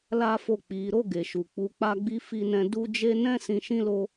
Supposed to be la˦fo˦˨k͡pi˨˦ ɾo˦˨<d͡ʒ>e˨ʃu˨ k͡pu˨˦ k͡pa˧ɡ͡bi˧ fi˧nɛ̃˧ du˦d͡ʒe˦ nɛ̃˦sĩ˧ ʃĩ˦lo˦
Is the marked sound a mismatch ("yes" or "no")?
yes